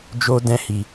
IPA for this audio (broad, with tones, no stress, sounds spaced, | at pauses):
d͡ʒ o˦ d ɛ̃˦ h i˧